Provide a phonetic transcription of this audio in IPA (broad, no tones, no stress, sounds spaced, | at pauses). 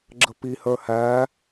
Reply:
ɡ͡ǁ ə p i h ə˞ h æ